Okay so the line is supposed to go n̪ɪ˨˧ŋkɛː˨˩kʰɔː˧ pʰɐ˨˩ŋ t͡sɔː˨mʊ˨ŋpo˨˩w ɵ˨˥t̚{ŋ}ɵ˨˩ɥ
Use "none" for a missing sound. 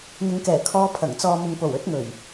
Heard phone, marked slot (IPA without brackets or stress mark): ŋ